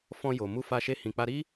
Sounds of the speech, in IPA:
f ɔ̃˧ j o˨ m u˧ f a˧ ʃ e˧ h ĩ˨ k͡p a˧ ɾ i˦

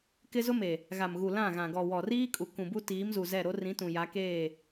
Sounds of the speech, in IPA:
k ɪ˦ z ʊ˦ m e˨ | ɣ a˨ m ɣ u˨ l ã˦˨ ɣ ã˨ ɡ ɔ˨ w ɔ˨ r iː˦ kʼ u˨ k ũ˨ b u˦ t iː˨˦ m z u˨ z ɛ˦˨ ɾ o˦ r ĩ˨˦ t ũ˨ j a˨˦ k eː˦˨

